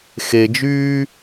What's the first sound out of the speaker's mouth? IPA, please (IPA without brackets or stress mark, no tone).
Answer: x